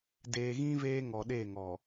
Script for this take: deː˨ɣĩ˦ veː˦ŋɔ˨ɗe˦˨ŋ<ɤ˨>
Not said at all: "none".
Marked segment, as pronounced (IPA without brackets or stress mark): ɔ˨